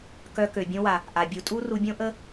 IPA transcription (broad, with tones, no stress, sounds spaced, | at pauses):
k œ˧ k ø˨ bʲ õ˧ w a˨ | ʔ a˨ bʲ u˧ tʼ u˦ r u˧ bʲ õ˦ ʔ ə˦